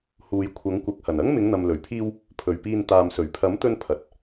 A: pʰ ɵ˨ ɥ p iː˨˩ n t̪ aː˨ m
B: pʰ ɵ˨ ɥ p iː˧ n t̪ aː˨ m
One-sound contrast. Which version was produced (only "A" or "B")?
B